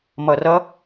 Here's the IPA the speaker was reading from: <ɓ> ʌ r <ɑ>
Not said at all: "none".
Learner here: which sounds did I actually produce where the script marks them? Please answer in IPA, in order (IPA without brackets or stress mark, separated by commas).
m, ʌ